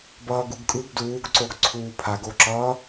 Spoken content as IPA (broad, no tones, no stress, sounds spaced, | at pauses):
b ʌː ɡ u ɡ kʼ ɯ ɡ d uː ɡ ǀ o ɡ ǀʰ uː pʰ a ɡ o ǁ ʌː